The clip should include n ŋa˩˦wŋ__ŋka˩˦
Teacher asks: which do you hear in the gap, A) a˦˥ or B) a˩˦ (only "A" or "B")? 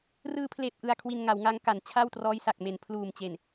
A